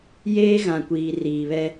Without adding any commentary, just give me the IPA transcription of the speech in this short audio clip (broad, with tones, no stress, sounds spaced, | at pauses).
j eː˦ ɣ ã˨ kʷ iː˨ r iː˨ β ɛ˦